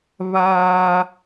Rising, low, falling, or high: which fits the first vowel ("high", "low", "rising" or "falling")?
high